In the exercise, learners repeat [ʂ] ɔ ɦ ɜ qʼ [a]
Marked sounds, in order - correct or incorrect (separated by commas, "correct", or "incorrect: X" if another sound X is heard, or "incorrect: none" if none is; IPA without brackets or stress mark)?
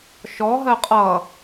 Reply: incorrect: ʃ, incorrect: ʌ